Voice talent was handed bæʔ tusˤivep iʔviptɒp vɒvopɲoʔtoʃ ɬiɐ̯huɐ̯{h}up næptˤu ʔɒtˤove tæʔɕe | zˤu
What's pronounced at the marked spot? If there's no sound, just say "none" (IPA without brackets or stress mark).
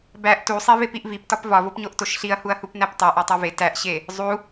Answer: h